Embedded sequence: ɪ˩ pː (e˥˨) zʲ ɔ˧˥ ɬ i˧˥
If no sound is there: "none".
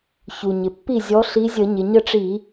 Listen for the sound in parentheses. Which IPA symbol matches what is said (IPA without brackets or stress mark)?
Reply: i˥˨